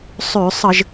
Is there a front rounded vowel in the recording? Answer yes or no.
yes